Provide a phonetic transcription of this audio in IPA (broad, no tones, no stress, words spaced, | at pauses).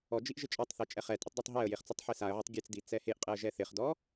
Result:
ɔd͡ʒiʔ ʒɪt͡ʃʼɔtˤθe t͡ʃʼɛχɛtʼɪtˤ detˤɦɛə̯jeχ t͡sɔtˤħisaə̯ʕetˤ ɡʲet͡sdi t͡sɛheʔqʼeə̯ ʒɛθɪχdɔ